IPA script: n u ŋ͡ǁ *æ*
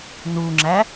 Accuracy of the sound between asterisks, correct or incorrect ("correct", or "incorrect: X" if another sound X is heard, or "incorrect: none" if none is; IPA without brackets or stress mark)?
correct